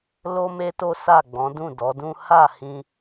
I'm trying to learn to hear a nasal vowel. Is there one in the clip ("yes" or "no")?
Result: yes